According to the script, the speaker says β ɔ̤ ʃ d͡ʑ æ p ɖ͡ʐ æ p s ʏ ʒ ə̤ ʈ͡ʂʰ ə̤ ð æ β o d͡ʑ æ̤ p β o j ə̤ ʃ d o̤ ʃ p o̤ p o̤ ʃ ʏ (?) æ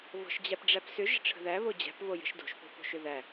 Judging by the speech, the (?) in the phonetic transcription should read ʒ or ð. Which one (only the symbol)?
ð